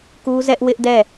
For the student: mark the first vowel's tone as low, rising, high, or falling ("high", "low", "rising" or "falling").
high